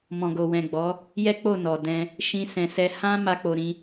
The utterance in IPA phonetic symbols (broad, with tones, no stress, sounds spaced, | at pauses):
m ɔ̃˨ ɡ o˨ w ɛ̃˨ ɡ͡b ɔ˨˦ | j ɛ˦ k͡p o˦˨ n ɔ˨ d ɛ̃˧ | ʃ ĩ˧ s ɛ̃˨ s ɛ˧ h ã˦ m a˦ k͡p o˧ ɾ ĩ˦